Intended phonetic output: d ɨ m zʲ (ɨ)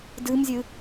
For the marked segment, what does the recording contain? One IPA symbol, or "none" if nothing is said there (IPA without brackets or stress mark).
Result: ɨ